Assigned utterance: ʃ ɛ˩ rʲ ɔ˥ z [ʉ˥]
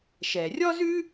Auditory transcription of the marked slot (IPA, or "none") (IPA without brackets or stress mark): ʉ˥